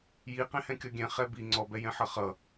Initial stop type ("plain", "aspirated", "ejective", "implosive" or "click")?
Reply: plain